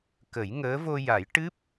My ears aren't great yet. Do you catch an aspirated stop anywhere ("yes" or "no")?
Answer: no